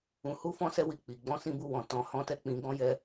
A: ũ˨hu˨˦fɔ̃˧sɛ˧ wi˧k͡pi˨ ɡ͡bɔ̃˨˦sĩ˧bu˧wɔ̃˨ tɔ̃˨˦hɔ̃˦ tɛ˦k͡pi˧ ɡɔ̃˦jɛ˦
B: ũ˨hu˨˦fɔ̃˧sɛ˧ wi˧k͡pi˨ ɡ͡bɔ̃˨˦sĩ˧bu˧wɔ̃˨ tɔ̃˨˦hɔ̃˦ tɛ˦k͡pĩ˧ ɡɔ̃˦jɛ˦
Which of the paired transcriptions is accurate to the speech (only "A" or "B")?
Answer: B